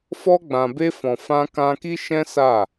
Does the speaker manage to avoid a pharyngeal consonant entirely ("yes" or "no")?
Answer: yes